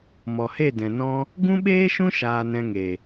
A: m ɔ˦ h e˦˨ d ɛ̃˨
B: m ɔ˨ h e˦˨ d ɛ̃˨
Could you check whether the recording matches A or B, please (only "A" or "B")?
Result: B